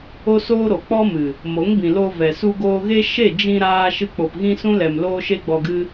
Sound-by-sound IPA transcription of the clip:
o˦soː˦ɾo˨ k͡pɔ˦mɨ˨ | mo˨˦ŋbĩ˨loː˧ vɛ˨ su˧ɡoː˧ɣe˦ ʃe˦˨d͡ʒĩ˧ ɾaː˧ ʃɨ˧k͡po˨pɣĩ˦sũ˦ lɛ˨m loː˦ʃe˦ɡ͡bɔ˧ɡɨ˦

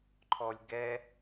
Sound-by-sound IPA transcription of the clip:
ǃʰɔlʲɡɛ

